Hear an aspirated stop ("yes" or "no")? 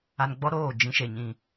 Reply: no